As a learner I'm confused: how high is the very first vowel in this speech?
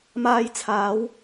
low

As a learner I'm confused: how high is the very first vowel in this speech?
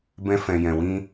mid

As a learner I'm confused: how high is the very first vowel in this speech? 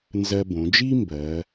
mid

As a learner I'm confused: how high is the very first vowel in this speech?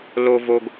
mid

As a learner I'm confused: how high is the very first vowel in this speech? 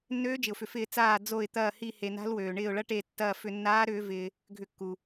mid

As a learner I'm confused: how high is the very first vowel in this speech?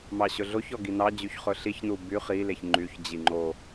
low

